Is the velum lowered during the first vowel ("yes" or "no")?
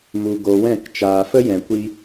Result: no